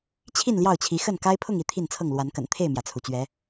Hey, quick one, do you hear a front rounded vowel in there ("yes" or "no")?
no